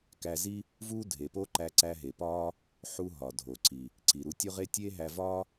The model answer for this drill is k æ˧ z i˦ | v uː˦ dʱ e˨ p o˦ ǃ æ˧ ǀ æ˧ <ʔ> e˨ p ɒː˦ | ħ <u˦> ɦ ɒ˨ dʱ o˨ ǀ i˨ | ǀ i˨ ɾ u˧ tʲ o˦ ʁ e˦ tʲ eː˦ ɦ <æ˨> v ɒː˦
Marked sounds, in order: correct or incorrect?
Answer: incorrect: ɦ, incorrect: u˧, incorrect: æ˧

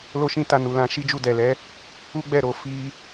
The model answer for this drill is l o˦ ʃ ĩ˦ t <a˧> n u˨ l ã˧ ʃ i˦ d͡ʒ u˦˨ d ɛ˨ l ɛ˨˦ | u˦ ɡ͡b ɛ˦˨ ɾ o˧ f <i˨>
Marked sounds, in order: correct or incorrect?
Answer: correct, incorrect: i˧

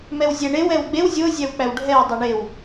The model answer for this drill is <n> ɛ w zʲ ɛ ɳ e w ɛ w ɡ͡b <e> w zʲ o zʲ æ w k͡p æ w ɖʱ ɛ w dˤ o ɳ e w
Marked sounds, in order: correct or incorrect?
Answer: incorrect: m, correct

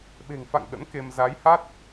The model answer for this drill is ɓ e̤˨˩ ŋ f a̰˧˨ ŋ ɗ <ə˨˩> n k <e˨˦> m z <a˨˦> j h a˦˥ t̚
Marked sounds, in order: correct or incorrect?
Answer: incorrect: ə̰˧˥, incorrect: e˧, correct

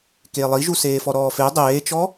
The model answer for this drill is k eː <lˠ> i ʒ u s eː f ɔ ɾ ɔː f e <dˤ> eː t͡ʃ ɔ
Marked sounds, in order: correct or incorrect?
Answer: correct, correct

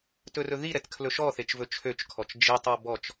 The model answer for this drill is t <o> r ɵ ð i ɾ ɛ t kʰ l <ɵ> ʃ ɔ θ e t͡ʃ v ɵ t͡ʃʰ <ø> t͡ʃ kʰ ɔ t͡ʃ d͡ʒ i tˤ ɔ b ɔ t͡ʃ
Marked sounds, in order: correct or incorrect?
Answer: incorrect: ɵ, correct, correct

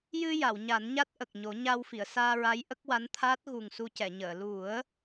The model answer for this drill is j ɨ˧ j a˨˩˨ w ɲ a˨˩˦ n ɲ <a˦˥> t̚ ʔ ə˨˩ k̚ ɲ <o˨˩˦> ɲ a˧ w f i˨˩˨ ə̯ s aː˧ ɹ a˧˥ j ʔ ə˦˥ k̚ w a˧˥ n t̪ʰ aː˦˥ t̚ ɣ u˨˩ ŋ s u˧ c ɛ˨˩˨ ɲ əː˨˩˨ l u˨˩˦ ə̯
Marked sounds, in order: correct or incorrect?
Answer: correct, correct

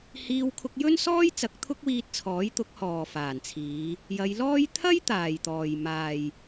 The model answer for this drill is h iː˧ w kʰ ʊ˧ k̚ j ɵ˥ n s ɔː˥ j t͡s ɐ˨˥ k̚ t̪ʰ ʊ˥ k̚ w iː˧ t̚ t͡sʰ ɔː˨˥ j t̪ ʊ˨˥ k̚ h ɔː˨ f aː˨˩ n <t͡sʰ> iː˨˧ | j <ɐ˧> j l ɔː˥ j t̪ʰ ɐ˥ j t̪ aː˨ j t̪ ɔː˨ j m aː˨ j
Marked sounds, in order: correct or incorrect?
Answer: correct, incorrect: ɐ˨˧

